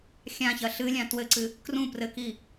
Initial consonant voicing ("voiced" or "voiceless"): voiceless